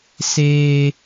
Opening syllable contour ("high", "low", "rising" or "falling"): high